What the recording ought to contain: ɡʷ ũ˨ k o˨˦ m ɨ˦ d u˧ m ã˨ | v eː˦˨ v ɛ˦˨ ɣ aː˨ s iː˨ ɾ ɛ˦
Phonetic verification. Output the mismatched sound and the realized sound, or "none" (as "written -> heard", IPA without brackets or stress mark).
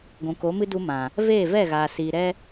none